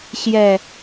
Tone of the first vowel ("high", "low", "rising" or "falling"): low